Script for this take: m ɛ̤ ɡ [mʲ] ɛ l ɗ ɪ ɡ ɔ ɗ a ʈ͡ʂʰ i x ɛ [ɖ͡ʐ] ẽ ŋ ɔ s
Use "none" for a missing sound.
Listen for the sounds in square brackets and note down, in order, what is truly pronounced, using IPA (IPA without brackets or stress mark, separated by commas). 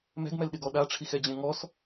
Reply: m, d͡ʑ